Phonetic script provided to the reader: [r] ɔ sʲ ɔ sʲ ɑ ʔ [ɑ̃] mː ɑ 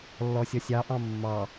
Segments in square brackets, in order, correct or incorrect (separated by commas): incorrect, correct